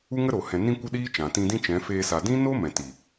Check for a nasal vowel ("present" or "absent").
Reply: present